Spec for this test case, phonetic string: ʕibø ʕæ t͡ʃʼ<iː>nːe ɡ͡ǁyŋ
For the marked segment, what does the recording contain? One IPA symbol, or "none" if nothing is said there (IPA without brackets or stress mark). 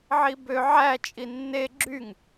i